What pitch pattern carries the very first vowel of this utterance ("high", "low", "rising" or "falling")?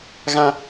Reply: high